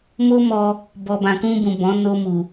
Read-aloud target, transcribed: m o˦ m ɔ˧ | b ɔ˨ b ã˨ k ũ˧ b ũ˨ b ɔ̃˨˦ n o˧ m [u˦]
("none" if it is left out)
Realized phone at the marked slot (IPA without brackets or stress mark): u˨